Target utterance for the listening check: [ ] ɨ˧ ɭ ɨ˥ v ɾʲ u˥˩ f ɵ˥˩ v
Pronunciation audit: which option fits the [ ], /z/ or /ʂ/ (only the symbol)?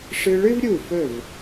ʂ